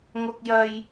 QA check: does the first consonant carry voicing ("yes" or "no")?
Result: yes